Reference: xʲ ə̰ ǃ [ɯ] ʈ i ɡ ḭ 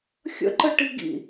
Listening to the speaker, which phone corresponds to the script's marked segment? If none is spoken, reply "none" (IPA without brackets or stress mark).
ə